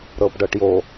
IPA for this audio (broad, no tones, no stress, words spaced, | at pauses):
ɾɤbɖɤʈjo